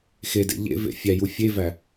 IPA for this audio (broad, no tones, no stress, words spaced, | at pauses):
xedḛ ʎḛvḛ fʲæju fʲevæ